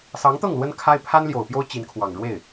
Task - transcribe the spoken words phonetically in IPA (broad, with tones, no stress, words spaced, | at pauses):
sɑ˧˥ŋt̪ɤ˥˩ŋ lwə˥nkʰa˥ɪ̯ pʰa˥nljo˨˩ʊ̯pjo˥ʊ̯ t͡ɕi˧˥nkʰwɑ˨˩ŋ ɻwe˥˩ɪ̯